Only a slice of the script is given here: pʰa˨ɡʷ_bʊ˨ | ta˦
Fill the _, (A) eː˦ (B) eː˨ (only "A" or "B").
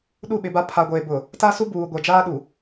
B